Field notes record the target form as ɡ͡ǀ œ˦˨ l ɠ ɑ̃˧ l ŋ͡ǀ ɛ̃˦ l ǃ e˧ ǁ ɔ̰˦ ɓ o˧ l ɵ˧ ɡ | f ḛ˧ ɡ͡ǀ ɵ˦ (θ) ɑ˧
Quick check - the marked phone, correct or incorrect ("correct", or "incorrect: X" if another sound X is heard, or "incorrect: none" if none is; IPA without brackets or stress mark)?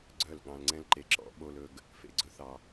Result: correct